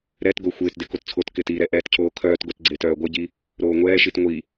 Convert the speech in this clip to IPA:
ɾ ɛ t ɡ o xʷ ɪː t d ɪ k o t t͡sʰ o t k ɪː t i ɾ ɛ ʔ ɛː t cʰ oː kʰ œː t ɡ o t ɡ͡ǀ ɪː t œː ɡʷ ɪ ɟ i | ɾ oː ŋʷ ɛː ʃ i t ŋʷ i

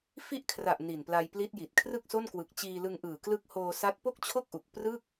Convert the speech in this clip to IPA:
f i˦˥ ʔ kʰ r a˨˩ ʔ n i˨˩ n p l a˧ j p l i˦˥ t̚ j i˨˩ t̚ kʰ r ɯ˥˩ k̚ s o˥˩ n k w ɯ˨˩ k̚ t͡ɕ iː˧ l ɯ˧ ŋ ʔ ɯː˨˩ k l ɯ˦˥ k̚ h oː˧ s a˦˥ t̚ p o˥˩ k̚ t͡ɕʰ o˥˩ k̚ ʔ u˨˩ k̚ p r ɯ˥˩ k̚

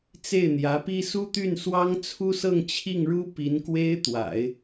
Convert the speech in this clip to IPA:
t͡s e˥˩ ɪ̯ n̪ j ä˧˥ p i˥ s u˥ t̪ y˥˩ n s w ɑ˥ ŋ t͡sʰ u˥ s ɤ˥˧ ŋ t͡ɕʰ i˥˩ ŋ ɻ u˥ p i˧˥ n k w e˥ ɪ̯ t̪ w a̰˨˩˦ ɪ̯

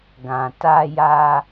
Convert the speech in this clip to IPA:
ɡ ã˨ t a˧ j a˧

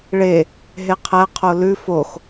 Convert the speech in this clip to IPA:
ɭ e | ɦ e qʰ æ qʰ o l ʉ f o x

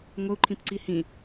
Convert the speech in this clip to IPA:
ŋʷ ə u̯ ǃʰ ĩ p ǀ i h ĩ

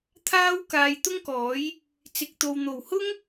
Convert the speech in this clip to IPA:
t̪ʰ aː˥ w k aː˧ j t̪ ʊ˥ ŋ k ɔː˨˥ j | t͡s ɪ˨ k̚ t̪ o˨ w n̪ o˨˩ w h ʊ˥ ŋ

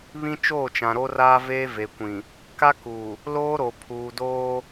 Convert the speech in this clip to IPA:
β ĩ˦ t͡ʃ oː˦˨ t͡ʃ ã˨ ɾ o˦ r aː˦ v eː˦ v e˨ kʷ ĩ˨ | k a˦ k uː˨ | l oː˦ ɾ o˨ pʰ uː˨ d oː˦

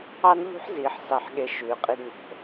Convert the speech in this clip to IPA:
ɑ˦ n ʎ ṳ˦ ħ z iː˨ ħ s ɑ˦ ħ ɠ e˦ ʃ ʉː˨ qʼ i˦ d ɲ o̤˨

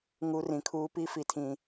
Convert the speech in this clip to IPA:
ŋ u˨ r ĩ˨ kʰ uː˦ p i˦ f i˨ tʰ ĩ˨

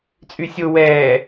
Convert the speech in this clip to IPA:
t͡sʼ y sʲ o w ɛː

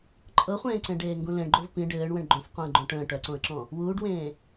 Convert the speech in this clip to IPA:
ǃʼ ɤ χʷ ẽː ǀ ẽ ɖ eː ŋ ɡ ũ l ẽ ɳ ɡ͡ǃ o v p ĩ ɖ ɘː ɳ w ə̃ ɳ ɡ͡ǃ õ f qʷ ə̃ː ɡ͡ǃ õ ʈ ə̃ː ʈ œ ǀ õ ə̯ ǁ ɔ̃ | w uː ɖ w ẽː

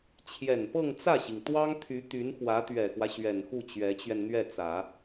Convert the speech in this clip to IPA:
t͡ɕʰ j ɛ˨˩ n p ɤ˥˧ ŋ t͡s ä˥˩ ɕ i˩ ŋ t̪ w ɑ˥ ŋ t̪ʰ y˧˥ t̪ y˧˥ n x w ä˧˥ t̪ ɥ ɛ˨˩ x w ä˦ ɕ ɥ ɛ˨˩ n x u˥˩ t͡ɕ ɥ ɛ˧˥ t͡ɕ ɥ ɛ˧ n n̪ ɥ ɛ˥˩ t͡s ä˨˩˦

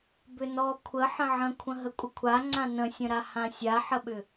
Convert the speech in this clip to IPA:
b ʏ n ɔ kʷʰ ə ħ ə̃ ʕ ə̃ kʷʰ ə̃ ɦ ə kʷʼ ə kʷʰ a ŋ͡ǀ ã n ə̃ sʲ ə̃ ɾ a h ã sʲ a ħ ə ɓ ʏ

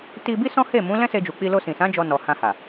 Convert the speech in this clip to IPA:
t i˧ b i˦ s ɔ̃˦ h e˦˨ m ũ˨˦ l ɛ̃˦ s e˧ d͡ʒ u˨ k͡p i˧ l o˧ s ĩ˨ s ã˨˦ d͡ʒ ɔ˧ n ɔ˨ h ã˧ h a˨

